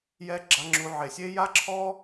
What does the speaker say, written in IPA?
j ɛ˧˥ ɡ͡ǁ a˩˧ ŋ͡ǁ u˩˧ ʕ e˩ sʲ e˥ j a˥ ǁʰ ɔ˥

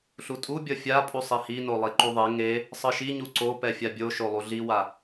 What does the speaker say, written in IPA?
ɬ u tʼ u bʲ ʌ fʲ a pʼ u sˤ i h i n o lˠ i ǃ u ðˤ e ŋ e | sˤ ɯ ʃ i ɲ u ǀ o p ɛ fʲ a bʲ o ʃ o lˠ u ɮ i w a

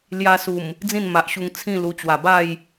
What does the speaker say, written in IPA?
l j a˧ s u˨˩ m | d͡z ĩ˥˧ n m a˨ ʔ ɕ u˧ ŋ t͡sʰ ĩ˥˧ l u˧ t͡ɕ w a˨˩ b a˥˧ j

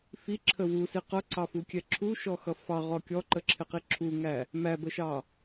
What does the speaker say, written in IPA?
f i ǁʰ ə w u s i q ʌ ǀ ɑ f u kʲ ɛ ǁʰ u ʃ ɔ x ʌ f ɑ ʁ ɔ kʲ ɔ ǃ ə ǁʰ ɪ q i ǁʰ u ŋ æ | m æ b ə ʃ ɑ

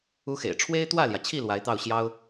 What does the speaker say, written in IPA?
u˥ x ḛ˨˩ ɪ̯ ʈ͡ʂʰ w e˥ ɪ̯ t̪ w ä˥˩ l j ä˩ t͡ɕʰ i˥˩ l w a˧˥ ɪ̯ t̪ ɑ˥˩ ʊ̯ ɕ j ɑ˥ ʊ̯

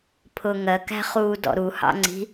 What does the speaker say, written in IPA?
pʰ ʊ ŋ ɜ k æ̤ χ uː d ɔ̰ ɾ u h ɑ̰ ŋ͡ǀ i̤

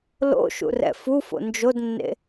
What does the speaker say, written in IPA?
l o̰ ʃ ṵ r ɛ̰ f u f o̰ n d͡ʒ o d nː ḛ

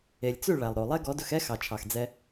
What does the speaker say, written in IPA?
e˨ lʲ t͡s ʉ˦˨ ɭ æ˨ lˠ ɾ o˨ lˠ ɛ˦ ɡ ɔ˨˦ d ɵ˧ x ɛ˦ x ɑ˨ t͡ʃʰ ɑ˨ x d͡z ɛ˧

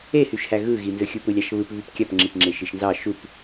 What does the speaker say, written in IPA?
e h y ʃ h æ ɣ ɯ ɣ i n z ɯ xʲ u p ɯ lʲ ɑ ʃ β ɯ p β y p kʲ ɑ p ŋ͡ǁ i p ŋ͡ǁ e ʃ i ʃ n z ɑ ʃ u p

